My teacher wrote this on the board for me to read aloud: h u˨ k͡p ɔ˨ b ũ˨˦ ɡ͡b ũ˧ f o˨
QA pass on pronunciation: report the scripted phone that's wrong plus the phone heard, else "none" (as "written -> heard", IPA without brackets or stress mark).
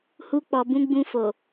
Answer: u˨ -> u˧